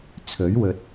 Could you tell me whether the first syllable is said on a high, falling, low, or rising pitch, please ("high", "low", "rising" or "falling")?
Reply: rising